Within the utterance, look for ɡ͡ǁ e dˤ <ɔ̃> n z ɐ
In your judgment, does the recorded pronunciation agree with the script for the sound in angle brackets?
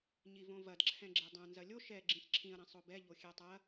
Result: no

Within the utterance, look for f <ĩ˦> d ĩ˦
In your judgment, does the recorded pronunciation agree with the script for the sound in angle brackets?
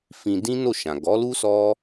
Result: no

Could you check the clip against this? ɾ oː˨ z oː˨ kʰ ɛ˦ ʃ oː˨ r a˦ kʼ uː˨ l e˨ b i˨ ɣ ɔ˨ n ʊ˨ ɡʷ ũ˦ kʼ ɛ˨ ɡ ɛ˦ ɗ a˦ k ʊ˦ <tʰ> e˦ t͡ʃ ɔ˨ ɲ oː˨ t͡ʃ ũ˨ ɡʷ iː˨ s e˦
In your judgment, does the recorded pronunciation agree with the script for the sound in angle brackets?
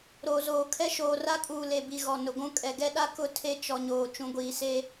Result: yes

